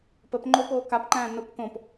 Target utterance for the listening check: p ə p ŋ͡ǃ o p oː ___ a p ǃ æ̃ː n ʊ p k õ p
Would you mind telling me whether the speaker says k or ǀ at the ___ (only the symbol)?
k